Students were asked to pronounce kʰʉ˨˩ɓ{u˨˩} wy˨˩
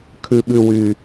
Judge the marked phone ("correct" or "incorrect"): incorrect